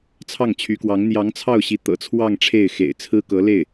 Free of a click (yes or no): yes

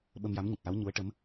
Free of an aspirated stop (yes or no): yes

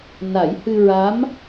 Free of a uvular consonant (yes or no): yes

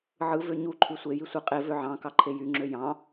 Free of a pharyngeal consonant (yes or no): no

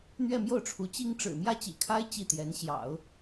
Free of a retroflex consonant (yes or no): no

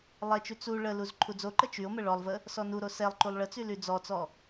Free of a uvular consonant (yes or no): yes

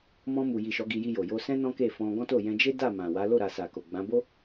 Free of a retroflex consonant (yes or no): yes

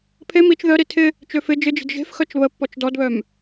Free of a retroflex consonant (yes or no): yes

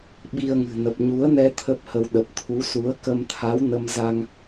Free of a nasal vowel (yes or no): yes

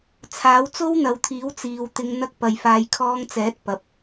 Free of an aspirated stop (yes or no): no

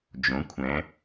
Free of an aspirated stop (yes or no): no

